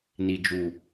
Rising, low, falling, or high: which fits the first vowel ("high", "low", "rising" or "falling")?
low